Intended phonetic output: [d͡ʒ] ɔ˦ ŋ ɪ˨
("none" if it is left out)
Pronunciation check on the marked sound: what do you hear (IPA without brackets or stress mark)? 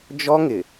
d͡ʒ